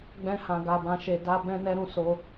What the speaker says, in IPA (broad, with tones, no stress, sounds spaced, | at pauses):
ɡ͡b ɛ̃˦ h ã˧ ɡ a˧ b ã˧ ʃ e˧ d a˦ b ɛ̃˦ n ɛ˦ ɾ ũ˧ s o˦